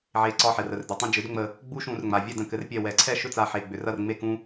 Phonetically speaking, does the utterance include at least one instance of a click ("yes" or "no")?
yes